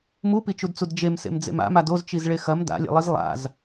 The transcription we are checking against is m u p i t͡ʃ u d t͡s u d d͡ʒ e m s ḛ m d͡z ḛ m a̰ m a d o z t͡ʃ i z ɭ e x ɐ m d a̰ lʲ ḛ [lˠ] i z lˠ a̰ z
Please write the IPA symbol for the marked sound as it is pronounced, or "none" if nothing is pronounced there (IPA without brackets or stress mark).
lˠ